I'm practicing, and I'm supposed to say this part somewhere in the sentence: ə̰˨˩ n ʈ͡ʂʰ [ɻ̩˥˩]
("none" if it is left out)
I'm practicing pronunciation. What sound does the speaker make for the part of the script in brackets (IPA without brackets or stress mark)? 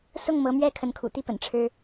ɻ̩˥